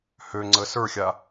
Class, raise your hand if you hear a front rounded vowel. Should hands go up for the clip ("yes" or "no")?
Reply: yes